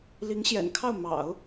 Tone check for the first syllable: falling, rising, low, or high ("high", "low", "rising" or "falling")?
rising